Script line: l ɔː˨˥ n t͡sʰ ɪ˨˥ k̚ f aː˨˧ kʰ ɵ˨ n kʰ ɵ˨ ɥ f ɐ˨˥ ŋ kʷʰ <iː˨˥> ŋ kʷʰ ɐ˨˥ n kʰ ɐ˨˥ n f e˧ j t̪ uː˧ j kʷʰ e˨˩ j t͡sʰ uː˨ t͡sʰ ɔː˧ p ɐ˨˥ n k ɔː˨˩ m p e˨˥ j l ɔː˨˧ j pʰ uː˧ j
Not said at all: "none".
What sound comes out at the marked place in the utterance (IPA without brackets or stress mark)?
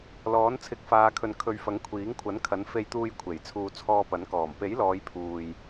iː˨˥